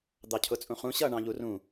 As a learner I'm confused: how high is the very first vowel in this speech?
low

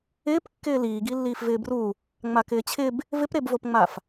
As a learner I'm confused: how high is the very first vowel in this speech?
high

